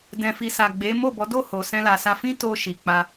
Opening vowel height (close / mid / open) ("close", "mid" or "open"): mid